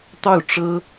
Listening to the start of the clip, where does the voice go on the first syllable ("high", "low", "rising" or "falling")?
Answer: falling